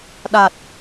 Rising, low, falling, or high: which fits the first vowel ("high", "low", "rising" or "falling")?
low